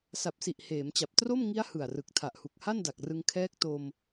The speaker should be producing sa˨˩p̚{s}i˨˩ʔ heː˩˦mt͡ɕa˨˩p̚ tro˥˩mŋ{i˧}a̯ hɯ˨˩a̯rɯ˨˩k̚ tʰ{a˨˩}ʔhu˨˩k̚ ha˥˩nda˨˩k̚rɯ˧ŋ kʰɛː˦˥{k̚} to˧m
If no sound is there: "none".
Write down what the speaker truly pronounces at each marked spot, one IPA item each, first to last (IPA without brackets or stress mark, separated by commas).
s, i˦˥, a˨˩, k̚